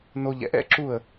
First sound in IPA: n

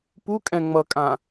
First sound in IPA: p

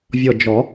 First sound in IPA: vʲ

